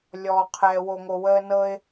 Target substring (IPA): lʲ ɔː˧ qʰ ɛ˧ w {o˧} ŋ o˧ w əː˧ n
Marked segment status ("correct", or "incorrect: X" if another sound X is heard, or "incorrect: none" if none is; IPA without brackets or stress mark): correct